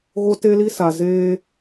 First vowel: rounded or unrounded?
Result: rounded